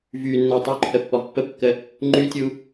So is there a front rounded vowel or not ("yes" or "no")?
yes